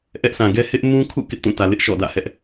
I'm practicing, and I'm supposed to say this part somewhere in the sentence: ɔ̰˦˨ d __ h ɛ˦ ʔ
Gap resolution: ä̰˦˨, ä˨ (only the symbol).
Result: ä̰˦˨